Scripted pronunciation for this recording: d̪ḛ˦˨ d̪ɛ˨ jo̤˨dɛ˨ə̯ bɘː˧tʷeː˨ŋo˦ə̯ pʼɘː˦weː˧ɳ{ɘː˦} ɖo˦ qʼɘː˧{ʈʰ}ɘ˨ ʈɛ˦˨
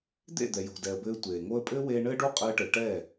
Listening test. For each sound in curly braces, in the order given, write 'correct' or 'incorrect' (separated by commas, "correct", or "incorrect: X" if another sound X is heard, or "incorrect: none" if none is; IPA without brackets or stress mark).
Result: correct, incorrect: ʈ